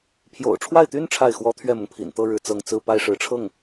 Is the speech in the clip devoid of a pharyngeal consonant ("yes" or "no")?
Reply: yes